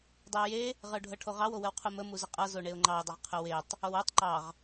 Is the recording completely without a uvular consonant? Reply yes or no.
no